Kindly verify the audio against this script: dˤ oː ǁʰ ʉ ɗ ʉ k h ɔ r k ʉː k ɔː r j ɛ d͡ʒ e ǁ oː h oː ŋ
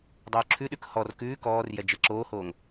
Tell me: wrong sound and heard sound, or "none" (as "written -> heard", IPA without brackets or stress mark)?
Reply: none